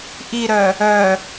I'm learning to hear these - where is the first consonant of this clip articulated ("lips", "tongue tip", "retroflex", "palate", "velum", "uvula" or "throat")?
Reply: throat